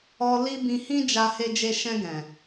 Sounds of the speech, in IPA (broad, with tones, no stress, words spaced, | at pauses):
ɔ˧ li˦ bĩ˧hĩ˦d͡ʒa˧ he˧d͡ʒe˧ʃɛ̃˧ ɡɛ̃˨